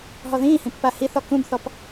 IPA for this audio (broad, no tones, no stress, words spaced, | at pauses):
ɦɔðĩːhĩ pːahiθɔ kũbθɔp